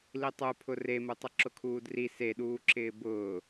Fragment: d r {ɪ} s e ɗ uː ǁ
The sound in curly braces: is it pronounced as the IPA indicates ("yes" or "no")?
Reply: no